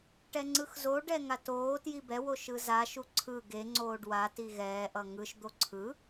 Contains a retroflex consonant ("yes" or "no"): yes